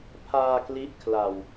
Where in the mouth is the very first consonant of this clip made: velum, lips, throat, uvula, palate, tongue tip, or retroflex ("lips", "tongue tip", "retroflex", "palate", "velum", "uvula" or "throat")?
lips